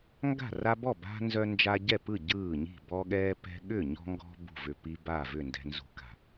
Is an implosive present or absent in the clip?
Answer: present